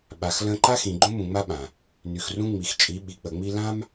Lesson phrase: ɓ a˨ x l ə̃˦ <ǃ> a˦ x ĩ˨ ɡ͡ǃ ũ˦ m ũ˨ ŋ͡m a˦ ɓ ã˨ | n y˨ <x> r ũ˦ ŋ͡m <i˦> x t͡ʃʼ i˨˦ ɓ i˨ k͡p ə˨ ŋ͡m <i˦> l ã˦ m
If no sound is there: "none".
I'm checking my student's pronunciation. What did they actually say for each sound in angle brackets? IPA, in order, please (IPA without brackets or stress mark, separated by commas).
ǃ, x, i˨, i˦